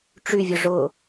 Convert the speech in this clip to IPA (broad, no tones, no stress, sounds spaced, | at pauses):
ʈ͡ʂ y vʲ ʊ ʐ ʊ